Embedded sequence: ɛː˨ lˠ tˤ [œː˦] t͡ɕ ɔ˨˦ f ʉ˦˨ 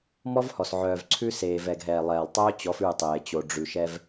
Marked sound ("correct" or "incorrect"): correct